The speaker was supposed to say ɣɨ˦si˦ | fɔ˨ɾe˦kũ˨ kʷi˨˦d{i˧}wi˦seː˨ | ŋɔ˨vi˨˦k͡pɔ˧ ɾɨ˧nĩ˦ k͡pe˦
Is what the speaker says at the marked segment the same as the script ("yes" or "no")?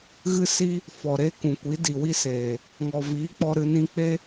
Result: no